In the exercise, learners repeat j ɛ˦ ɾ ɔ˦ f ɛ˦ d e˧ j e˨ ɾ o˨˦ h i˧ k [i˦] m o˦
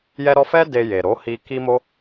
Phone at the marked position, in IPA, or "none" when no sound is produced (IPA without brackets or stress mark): i˦